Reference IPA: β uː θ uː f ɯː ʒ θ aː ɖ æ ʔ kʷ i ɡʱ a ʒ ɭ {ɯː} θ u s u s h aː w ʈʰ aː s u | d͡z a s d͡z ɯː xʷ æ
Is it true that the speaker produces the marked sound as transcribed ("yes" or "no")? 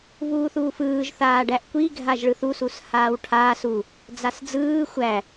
no